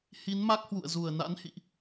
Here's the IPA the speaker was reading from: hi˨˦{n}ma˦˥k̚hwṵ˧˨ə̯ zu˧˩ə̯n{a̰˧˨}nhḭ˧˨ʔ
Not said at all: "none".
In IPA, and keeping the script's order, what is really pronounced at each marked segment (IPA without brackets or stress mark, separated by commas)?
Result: n, a̰˧˥